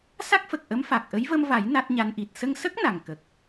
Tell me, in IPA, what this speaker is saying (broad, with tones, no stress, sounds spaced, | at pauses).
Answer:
s a˦˥ k̚ f ə˨˩ k̚ ʔ ə˧˥ m f a˨˩ k̚ ʔ ə˧˥ j v ə˧ m v a˨˩˦ j n a˦˥ t̚ ɲ a˧˥ n ʔ i˨˩ t̚ s ə˧ ŋ s ə˦˥ k̚ n a˨˩ ŋ k ə˨˩ k̚